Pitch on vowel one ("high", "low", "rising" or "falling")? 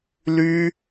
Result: high